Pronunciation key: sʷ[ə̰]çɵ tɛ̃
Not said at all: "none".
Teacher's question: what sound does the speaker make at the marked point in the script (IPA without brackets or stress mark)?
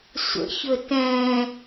ə̰